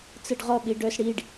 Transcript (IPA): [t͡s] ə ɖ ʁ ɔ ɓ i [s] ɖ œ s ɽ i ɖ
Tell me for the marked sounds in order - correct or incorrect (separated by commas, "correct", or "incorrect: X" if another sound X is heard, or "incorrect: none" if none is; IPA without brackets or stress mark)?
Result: correct, incorrect: none